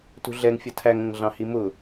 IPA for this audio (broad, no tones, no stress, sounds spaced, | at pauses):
t ṳ ɮ ɛ ŋ fʲ ʌ tʰ æ ŋ ə̃ ŋ ɮ ɑ̃ h i m ʊ